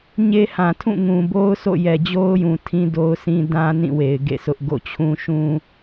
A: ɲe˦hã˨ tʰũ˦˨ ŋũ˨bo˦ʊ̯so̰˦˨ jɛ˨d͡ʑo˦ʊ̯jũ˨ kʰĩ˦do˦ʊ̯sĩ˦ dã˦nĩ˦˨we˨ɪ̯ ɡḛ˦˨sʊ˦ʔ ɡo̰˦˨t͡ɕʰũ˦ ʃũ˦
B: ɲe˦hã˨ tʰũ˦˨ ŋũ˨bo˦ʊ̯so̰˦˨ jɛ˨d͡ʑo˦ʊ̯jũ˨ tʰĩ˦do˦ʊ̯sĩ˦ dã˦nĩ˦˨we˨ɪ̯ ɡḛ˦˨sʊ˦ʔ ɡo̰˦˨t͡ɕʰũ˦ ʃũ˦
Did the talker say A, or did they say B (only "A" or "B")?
B